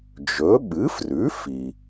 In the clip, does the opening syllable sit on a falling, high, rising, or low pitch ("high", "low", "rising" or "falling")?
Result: rising